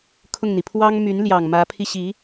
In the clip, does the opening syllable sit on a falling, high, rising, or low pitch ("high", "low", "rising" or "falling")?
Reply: falling